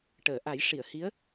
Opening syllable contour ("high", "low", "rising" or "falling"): low